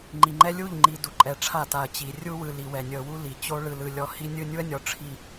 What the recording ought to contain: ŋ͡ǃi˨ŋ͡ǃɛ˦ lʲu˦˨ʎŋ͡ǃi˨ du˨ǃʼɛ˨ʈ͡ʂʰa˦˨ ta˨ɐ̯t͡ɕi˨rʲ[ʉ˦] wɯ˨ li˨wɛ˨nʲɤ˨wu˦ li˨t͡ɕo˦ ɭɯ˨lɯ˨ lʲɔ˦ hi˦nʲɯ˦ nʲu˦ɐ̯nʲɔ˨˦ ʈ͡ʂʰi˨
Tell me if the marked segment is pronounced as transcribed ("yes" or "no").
no